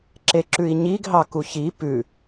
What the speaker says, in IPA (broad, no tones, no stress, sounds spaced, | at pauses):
ǁ e ǁ ʉ i̯ ɲ i ɡ ɦ ɑ k u ç i p ʉ